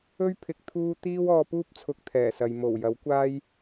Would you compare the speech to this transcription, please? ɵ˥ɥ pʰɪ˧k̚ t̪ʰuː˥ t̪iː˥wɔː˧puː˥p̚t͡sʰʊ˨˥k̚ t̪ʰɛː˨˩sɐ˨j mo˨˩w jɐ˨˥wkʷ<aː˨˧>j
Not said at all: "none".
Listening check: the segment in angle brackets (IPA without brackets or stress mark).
aː˥